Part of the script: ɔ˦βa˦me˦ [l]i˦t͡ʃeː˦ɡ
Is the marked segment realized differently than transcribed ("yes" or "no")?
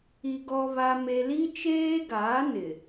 no